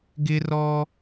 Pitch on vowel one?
high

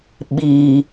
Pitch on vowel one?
low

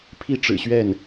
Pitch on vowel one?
high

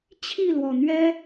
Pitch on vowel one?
falling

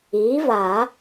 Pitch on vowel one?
rising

